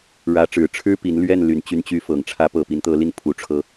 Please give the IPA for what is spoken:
ɻ ä˧˥ ʈ͡ʂ ɻ̩˨˩ ʈ͡ʂʰ ɻ̩˥ p i˧˥ n l ɥ ɛ˥˩ n l y˨˩ n t͡ɕ y˧˥ n t͡ɕ y˧˥ f ɤ˨˩ ŋ ʈ͡ʂʰ ä˧˥ p ɤ˨˩ p i˧˥ n t̪ ɤ˧˥ l i˥˩ n pʰ u˧˥ ʈ͡ʂʰ ɤ˥

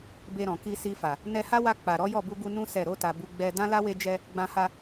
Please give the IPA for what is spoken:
b e˧ ɾ ɔ̃˨ k i˧ s i˧ f a˨ | n ɛ˧ h a˦ w a˧ k͡p a˨ ɾ ɔ˨˦ j ɔ˦˨ b u˧ ɡ u˧ n ũ˦ s ɛ˦˨ ɾ o˧ t a˨ b u˧ ɡ͡b ɛ˧ d ã˦ l a˦ w e˧ d͡ʒ ɛ˧ | ɡ͡b ã˧ h a˧

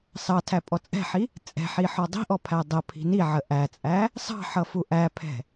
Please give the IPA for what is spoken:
s ɑ tʰ æ pʼ ɔ t͡sʼ ɛ̤ ħ i | t͡sʼ ɛ̤ ħ i ħ ɔ dˤ i̤ ʔ ɔ pʰ æ dˤ ə pʰ i̤ n i ʕ ə ʔ æ t͡sʼ æ | s ɑ̤ ħ ʌ f u ʔ æ pʰ ɛ̤

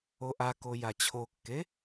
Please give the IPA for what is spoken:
o ʔ a k o j a t͡ɕʰ o kː e

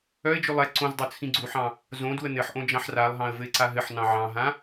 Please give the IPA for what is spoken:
œ ɪ̯ d͡ʒ ʉ lˠ ɛ ǀ õ z dˤ o t͡sʰ ĩ ɡ͡ǀ u ħ ɑ̃ | z õ d u ə̯ n ɘ ħ ʔ õ d͡ʒ ɑ̃ ħ r a lˠ ɦ ɑ̃ ə̯ v ɘ ɪ̯ ǀ a ɦ ɘ ħ n ɑ̃ ʕ ɑ̃ ɦ ã

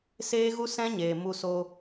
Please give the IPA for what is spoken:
s eː˦ ɣ u˦ s ɛ̃˦ ɲ eː˨ m u˧ s o˧

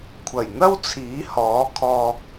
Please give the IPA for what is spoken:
kʷʰ ɐ˨˩ j n̪ ɐ˥ w t͡sʰ iː˨˥ h ɔː˨˥ kʰ ɔː˧ k̚

